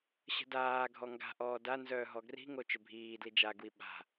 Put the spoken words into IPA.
ɕ ə̤ d aː ɡʱ ɔ ŋ ɡ a̤ ʔ ɔː d a n z œː ɦ ɔ ɡ r i̤ ŋ o t͡ʃ ø bʱ iː d l i d͡ʒ a ɡ w i ɓ a̤

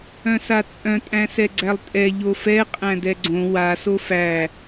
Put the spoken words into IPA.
œ̃ s a t͡sʼ œ̃ tʼ æ̃ s ɛ ɡ͡ǀ æ lˠ tʼ ɛ ʎ o f ɛ qʼ æ̃ d ɛ ɡ͡ǀ õ w a s o f æ

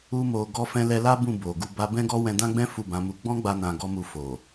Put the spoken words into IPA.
u˧ m o˨ ɡ ɔ˧ f ɛ̃˧ l ɛ˧ l a˦ b ũ˦˨ b o˨ ɡ u˧ b a˦ b ɛ̃˦ ɡ ɔ˦ w ɛ̃˧ d ã˦ ɡ͡b ɛ̃˦ f u˦˨ b ã˨˦ m u˧ ɡ͡b ɔ̃˦ ɡ͡b a˧ n ã˧ ɡ ɔ˦ m u˧ f o˨

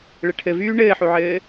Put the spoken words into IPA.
ɭ ɘ ʈʰ ɘ v yː ɳ ɘː ħ u ʕ ɘː

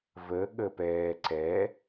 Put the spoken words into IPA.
v ə ɠ ə p ɛː ǀ ɛ

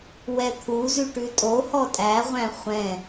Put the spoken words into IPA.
w ɛ t̪ʰ u z ʉ ʈ ʉ tʼ o h ɔ tʼ æ ʁʷ æ̃ χʷ ɛ̃

